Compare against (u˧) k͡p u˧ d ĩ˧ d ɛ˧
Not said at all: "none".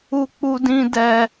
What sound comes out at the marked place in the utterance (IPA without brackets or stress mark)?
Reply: u˧